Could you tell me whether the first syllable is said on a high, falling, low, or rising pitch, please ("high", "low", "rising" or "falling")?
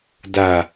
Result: low